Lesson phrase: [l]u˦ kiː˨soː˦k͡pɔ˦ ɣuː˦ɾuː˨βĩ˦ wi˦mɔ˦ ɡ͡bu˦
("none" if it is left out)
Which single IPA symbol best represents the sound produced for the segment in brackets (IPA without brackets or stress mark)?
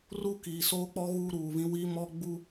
r